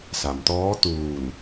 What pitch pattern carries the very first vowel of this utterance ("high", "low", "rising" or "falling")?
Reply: low